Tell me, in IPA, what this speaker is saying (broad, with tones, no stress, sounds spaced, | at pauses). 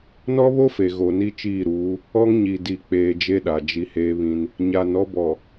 n ɔ˦ β o˦ f e˨ ɣ o˨ n i˦ t͡ʃ iː˦˨ ɾ uː˨˦ | ɔ˦ ŋ ɲ i˨ d i˨ k͡p eː˨ d͡ʒ e˦ ɗ a˨ d͡ʒ i˦ h eː˦ β ĩ˦ n | ɲ a˨ n ɔ˦ b ɔ˨